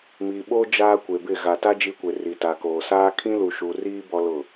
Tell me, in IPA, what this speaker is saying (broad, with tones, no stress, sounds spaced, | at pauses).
m i˨ ɓ o˦ d͡ʒ aː˦ kʷ e˨ b ɪ˦˨ ɣ a˨ t a˦ d͡ʒ i˦ kʷ e˨ r i˨ t a˨ k oː˨ s aː˦ kʰ ĩ˦ l u˨ ʃ u˨ r iː˦ b ɔ˦ l ʊ˦˨